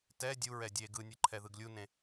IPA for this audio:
tɛ dʲuɹɛ dʲe ɡɯnʲɯǃʰɛðɯɡ lʲunẽ

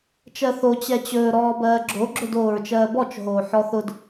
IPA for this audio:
t͡ʃɜθo t͡ɕɛt͡ɕɵː ɾɔːbɜːɡ͡ǁo ɡ͡ǁɵdoːɹt͡ʃɜːbɔt͡ʃ ɦoːħɔθʊd

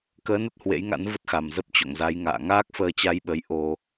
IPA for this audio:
kəː˨˦nə˦˥t̚ hwḛ˧˥jŋa̰˧˥n və˦˥t̚xa˨˩mzə˦˥p̚ t͡ɕo̰˧˨ŋza˨˦j ŋa̰ː˧˨ ŋaː˦˥k̚fəː˧t͡ɕa˧jɓə˨˦j ʔo˧

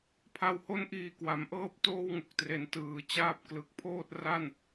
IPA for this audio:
pʰa˨˩who˧nʔiː˨˩ kwa˩˦mʔɤː˥˩p̚ toː˥˩wŋu˨˩k̚tre˩˦n tɯː˩˦ t͡ɕaː˥˩p̚ klɯ˨˩k̚pʰoː˥˩t̚ ra˥˩n

